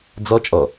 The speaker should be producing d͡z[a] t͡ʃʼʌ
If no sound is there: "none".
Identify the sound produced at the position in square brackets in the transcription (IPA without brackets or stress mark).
ʌ